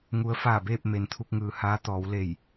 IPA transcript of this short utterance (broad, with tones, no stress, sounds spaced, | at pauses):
ŋ u˧˥ ə̯ f aː˧˩ b eː˥˨ p̚ m e˩ n t̪ʰ u˧ k̚ ŋ ɯː˩ h aː˧˥ t̪ ɔː˩˧ w l e˧˩ j